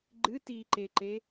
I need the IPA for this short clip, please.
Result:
ɡ͡ǃ ɨ t iː ǃ e ǃ e

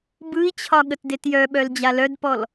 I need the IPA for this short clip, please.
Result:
b ɯ i̯ t͡ɕʰ ɒ ɠ ə t d e t j œ ɓ œ l d͡ʑ a l œ d p ɔ l

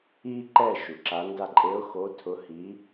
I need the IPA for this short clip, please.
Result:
iː˦ ǃ ɛː˦˨ ʃ u˩ ǁ a˨˦ n d a˦ ǃʼ e˨˦ ʊ̯ x o˨˦ tʰ ʊ˨˦ h i˨˦

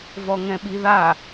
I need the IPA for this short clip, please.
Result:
v ɔ ŋ ɛ̃ ɓ i ð a

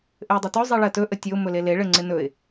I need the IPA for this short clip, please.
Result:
ʔ ɘ ʊ̯ dˤ ɪ t ɵ zˤ i ɭ ɜ t ɵ ʔ ə tʲ ɵ ʊ̯ m ɵ l e l e ɭ ɘ ŋ͡ǀ ɪ n ɵ ɪ̯

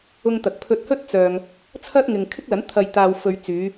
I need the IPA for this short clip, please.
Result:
ʊ˧ ŋ t̪ ɐ˨ k̚ pʰ ɵ˧ t̚ h ɵ˥ t̚ t͡s œː˨ ŋ | t͡sʰ ɐ˥ t̚ ŋ ɪ˨ ŋ kʰ ɪ˥ k̚ l ɐ˨˥ n t̪ʰ ɐ˨ j t̪ aː˨ w f ɵ˨ ɥ t͡s yː˨˧

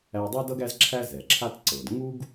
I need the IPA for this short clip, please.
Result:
æ˧ dˤ a˥ d ʌ˥ ɡ æ˥ z ǁʰ æ˥ z ɛ˩ ǁʰ a˥ t ǀ ɤ˩ d ŋ u˥ ɡ

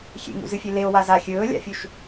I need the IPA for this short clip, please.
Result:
xʲ ḛ ŋ ṵ z ɨ fʲ e l e o̯ w a z a xʲ ɵː lʲ a̰ fʲ u ʃ

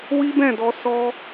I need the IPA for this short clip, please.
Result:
w i˦ b ɛ̃˦˨ d ɔ˧ s ɔ˦

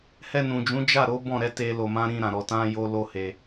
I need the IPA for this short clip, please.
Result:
h ɛ˧ n ũ˨ d͡ʒ ũ˨˦ d͡ʒ a˦˨ ɾ o˨˦ b ɔ̃˦˨ ɾ ɛ˧ t e˦ l o˧ m ã˦ ɾ ĩ˧ ɾ ã˨ ɾ ɔ˧ t ã˦ j o˦ l o˦ h e˧

